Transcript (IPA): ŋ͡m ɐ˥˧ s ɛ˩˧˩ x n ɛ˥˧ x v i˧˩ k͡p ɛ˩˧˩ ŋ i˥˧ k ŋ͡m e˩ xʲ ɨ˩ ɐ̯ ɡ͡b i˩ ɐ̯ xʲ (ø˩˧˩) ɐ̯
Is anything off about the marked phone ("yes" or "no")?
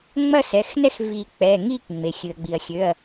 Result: no